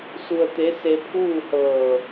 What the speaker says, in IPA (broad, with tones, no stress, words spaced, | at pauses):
su˧ə̯t̪e˧˥ se˧pʰuː˥˨hɤː˧˩